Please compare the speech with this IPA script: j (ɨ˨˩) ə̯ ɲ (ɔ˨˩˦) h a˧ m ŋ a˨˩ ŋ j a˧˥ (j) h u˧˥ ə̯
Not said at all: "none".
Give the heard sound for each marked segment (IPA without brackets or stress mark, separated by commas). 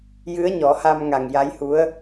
ɨ˧˥, ɔ˨˩˦, j